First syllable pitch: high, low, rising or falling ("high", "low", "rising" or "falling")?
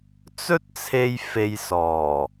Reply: high